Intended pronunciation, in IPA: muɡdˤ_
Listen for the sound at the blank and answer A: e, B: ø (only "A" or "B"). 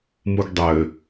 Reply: B